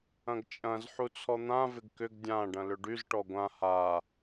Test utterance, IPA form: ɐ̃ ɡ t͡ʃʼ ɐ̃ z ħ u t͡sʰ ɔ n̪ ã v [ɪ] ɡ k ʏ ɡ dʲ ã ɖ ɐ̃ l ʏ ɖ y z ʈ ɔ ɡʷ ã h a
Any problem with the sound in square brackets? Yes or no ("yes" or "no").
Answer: no